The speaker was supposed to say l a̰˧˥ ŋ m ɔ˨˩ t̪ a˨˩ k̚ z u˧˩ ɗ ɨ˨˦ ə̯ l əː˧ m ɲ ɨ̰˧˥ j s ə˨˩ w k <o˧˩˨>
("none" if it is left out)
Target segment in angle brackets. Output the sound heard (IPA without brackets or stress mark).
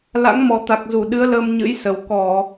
ɔ˧˩˨